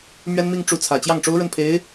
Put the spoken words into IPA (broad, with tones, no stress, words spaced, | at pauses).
mɥɛ˥nmi˥˧ŋ ʈ͡ʂu˥˩t͡sʰä˨˩ t͡ɕjɑ˥˩ŋʈ͡ʂo˥ʊ̯ɻə˥˩npʰe˧˥ɪ̯